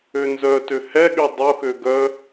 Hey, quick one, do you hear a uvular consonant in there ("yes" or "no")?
no